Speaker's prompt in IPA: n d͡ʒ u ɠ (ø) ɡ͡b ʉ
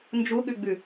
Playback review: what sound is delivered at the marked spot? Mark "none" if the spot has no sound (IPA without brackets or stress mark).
ʉ